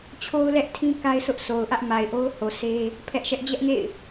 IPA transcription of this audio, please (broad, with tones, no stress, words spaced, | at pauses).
t͡ɕʰo˦ʊ̯lɛ˦ʔtʰĩ˦ ka˦ɪ̯sʰʊ˦ʔsʰo˨ʊ̯ʔä˦ʔ ma˨ɪ̯ʔo˦ʊ̯ ho˨sʰe˦ | pʰɛ˦ʔʃɛ˦ʔ d͡ʑɛ˦ʔŋḛ˦˨ɪ̯